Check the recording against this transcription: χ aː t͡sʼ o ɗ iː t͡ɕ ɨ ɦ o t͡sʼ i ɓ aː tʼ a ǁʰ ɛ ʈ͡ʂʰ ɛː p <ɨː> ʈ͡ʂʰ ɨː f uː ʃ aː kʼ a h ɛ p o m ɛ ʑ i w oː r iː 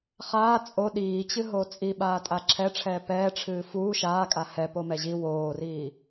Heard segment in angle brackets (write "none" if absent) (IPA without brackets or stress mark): ɛː